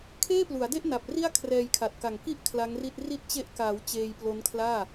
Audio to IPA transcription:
kʰ eː˥˩ p l u˩˦ a̯ d e˥˩ ʔ n a˨˩ p̚ r i˥˩ a̯ kʰ r ɛː˧ j kʰ a˨˩ t̚ k a˨˩ ŋ k i˥˩ ʔ kʰ l a˦˥ ŋ r i˥˩ t̚ r i˦˥ t̚ t͡ɕ e˦˥ ʔ k aː˩˦ w t͡ɕ eː˧ j p l o˦˥ n kʰ l aː˥˩

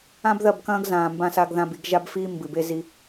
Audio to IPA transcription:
ã˦ b ð ɐ˦˨ b k ɐ̃ː˦ ɡ z ãː˨ m b ã˦ s a˦ ɡ ð ã˦ b i˨˦ ɡ ʒ a˦ b f iː˦ m b ɨ˨ b e˦ z i˦

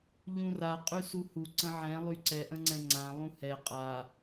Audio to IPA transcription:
ʎ ũ r a qʼ y s u h u ǀ ə̃ ʕ ɛ̃ lˠ y ǀ ɛ ʔ ə̃ ŋ͡ǀ ɛ̃ ŋ͡ǀ ã lˠ ũ h ɛ qʼ a

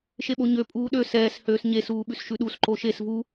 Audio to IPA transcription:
ʃ e ɓ o ɲ ø pʼ uː ɗ ø s ɛː s h øː s ɲ e s uː ɓ ʉ s ʃ ʉ ɗ u s ǃ o ʃ e s v u

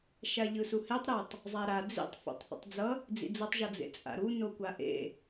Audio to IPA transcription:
ʃ a ʎ ɯ s u h e tˤ ɾ ʌ tˤ | zˤ a ɾ a d͡z ḭ tˤ f o̰ tˤ θ o̰ tˤ d͡z ʌ | d͡z ḭ d͡z ʌ tˤ ʒ ʌ d͡z ḛ t͡sʼ a̰ ɾ u n o kʷ a ʔ ḛ

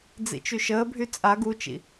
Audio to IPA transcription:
d͡z ḭ t͡ʃ y ʃ əː bʱ y t͡sʼ a ɡ u t͡ʃ ḭ

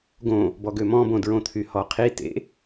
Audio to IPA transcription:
ɡ õ | b ɔ ɡ ø m ɔ̃ b õ d ɹ õ t̪ʰ y h ɔ qʰ i t ḛ

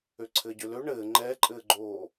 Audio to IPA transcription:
ø ǀʰ ɘː ɟ ø l ø ɳ ɘː ŋ͡ǃ ɛː ǃʼ ɘː ɡ͡ǃ oː

